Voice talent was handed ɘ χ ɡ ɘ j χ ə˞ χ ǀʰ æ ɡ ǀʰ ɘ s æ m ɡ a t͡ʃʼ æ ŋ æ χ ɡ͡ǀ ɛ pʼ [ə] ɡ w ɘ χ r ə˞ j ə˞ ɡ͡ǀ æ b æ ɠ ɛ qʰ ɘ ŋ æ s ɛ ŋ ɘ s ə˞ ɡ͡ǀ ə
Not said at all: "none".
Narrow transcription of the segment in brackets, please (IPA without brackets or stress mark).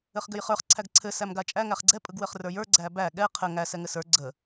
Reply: ɯ